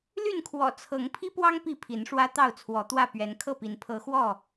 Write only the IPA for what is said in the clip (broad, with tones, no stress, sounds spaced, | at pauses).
l y˥˨ n kʰ w ɔ̰˨˩ t͡sʰ ɤ˨˦ ŋ pʰ i˦ p w ɑ˦ ŋ p i˥˨ pʰ i˨˦ n ʂ w ä˦ t̪ ɑ˥˨ ʊ̯ t͡sʰ w ɔ˨˦ t̪ w ä˥˨ p ɥ ɛ˨˦ n kʰ ɤ˥˨ p i˨˦ n pʰ ɤ˨˦ x w ɔ˥˨